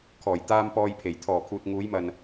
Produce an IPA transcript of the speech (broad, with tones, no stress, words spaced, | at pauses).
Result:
kʰɔː˨˩j t̪aː˧m pɔː˧jpʰe˨˩j t̪ʰɔː˨˩ kʰuː˨t̚ ŋuː˨˧jmɐ˨n